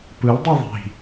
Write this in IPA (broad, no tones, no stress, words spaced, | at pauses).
pɯldˤi ðˤi̤